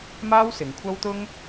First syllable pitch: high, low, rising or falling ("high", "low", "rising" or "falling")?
high